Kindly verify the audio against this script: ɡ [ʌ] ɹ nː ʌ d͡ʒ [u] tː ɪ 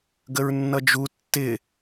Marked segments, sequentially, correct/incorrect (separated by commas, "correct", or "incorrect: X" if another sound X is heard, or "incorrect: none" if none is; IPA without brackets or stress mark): incorrect: ə, correct